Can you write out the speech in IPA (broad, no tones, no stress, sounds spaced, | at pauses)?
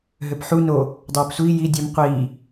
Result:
ɦ ø p ħ u n o | dˤ œː p sʷ iː j i dʲ ʊ m qʷ iː